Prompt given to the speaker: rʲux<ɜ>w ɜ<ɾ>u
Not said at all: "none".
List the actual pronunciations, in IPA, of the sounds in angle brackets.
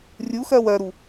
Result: ɜ, ɾ

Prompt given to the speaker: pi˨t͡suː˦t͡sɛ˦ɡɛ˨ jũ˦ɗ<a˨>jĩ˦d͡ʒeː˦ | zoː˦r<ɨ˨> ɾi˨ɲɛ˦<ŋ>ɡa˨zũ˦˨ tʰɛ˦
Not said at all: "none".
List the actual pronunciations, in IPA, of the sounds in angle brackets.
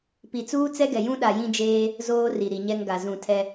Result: a˨, i˨, ŋ

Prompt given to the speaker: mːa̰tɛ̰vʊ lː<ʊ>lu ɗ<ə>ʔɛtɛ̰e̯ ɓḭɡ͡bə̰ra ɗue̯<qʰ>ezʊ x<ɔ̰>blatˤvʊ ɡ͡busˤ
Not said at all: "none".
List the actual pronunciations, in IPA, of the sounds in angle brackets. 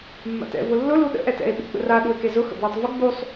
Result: ʊ, ə̰, k, ə̰

